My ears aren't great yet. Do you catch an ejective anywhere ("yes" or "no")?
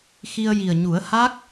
no